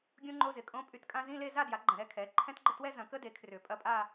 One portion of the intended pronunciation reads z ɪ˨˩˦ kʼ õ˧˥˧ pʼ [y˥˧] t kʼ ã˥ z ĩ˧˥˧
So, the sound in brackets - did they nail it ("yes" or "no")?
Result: yes